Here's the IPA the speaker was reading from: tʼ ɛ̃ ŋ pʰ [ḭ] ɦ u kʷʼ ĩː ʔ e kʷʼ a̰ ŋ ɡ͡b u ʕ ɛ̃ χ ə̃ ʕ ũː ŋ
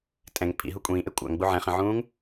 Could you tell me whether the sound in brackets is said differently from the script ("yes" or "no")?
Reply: no